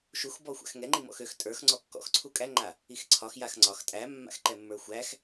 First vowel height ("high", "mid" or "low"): high